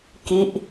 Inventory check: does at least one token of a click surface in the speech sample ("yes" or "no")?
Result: no